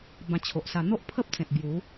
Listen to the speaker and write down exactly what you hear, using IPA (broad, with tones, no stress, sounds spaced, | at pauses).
b ã˧ t͡ɕʰ o˨ ʔ s a˧ n̪ o˦ ʔ pʰ ə˦ p̚ t͡s ẽ˨ t̚ b j u˨˦